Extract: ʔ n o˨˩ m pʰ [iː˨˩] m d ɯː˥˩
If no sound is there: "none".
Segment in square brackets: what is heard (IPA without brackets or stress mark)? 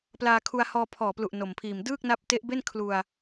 iː˨˩